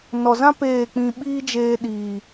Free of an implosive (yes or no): no